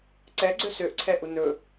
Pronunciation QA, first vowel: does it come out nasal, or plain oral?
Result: oral